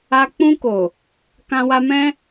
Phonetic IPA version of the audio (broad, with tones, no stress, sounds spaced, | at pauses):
a˧ k͡p ũ˧ k o˨ | k ã˧ w a˧ m ɛ̃˦